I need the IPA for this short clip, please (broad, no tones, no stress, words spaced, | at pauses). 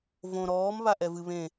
võ ɾɔːm βaʔɛvɨ βẽ